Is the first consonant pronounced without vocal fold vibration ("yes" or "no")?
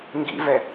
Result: no